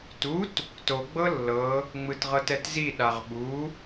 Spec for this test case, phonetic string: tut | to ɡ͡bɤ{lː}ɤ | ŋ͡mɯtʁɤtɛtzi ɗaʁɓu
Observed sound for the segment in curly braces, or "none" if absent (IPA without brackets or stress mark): lː